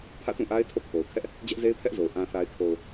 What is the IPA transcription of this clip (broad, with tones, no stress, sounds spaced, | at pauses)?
pʰ ä̰˦˨ t ũ˦˨ ʔ a˦ ɪ̯ tʰ o̰˦˨ kʰ o˨ ʊ̯ kʰ ɛ˦ ʔ | d͡ʑ ɛ˦ ʔ z e˦ ɪ̯ pʰ ɛ˦ ʔ z o˨ ʊ̯ ʔ ã˨ θ a˨ ɪ̯ kʰ o˨ ʊ̯